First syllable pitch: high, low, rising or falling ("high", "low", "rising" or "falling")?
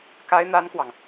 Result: high